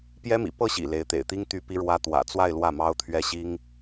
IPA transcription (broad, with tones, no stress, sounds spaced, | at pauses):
p j ɛ˥ m ḭ˨˩ p ɤ˥˩ ɕ ḭ˨˩ l e˧˥ ɪ̯ t̪ ḛ˨˩ ɪ̯ t̪ i˥ ŋ t̪ y˥ p i˥ ɻ w ä˥ t̪ w ä̰˨˩ t͡s w a˥˧ ɪ̯ l w ä˥˩ m ɑ˥ ʊ̯ t̪ʰ ɥ ɛ˥ ɕ i˥ ŋ